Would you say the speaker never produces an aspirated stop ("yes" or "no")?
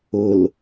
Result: yes